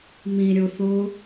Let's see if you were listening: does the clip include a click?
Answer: no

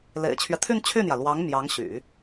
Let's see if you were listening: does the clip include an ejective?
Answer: no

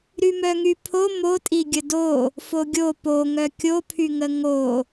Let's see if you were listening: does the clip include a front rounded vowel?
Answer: yes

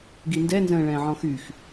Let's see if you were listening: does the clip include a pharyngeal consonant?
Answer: yes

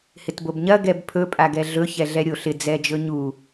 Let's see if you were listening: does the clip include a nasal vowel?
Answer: no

